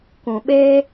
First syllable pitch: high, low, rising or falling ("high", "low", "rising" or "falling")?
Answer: low